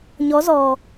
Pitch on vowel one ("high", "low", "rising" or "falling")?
rising